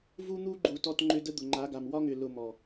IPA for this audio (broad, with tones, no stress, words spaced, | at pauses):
vu˦n̪u˦ɡ͡ǃu˨ tɔ˧tŋ͡ǃʏ˧ də˦d̪ʊ˨ŋ͡ǃa˨˦ɡa˨m wɒ˦ŋʏ˨ lʊ˧mɔ˨